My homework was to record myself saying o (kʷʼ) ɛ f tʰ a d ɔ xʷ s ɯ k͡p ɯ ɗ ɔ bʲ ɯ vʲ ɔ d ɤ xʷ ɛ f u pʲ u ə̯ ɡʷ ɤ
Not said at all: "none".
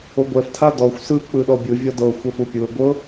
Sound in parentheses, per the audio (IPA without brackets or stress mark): ɡʷ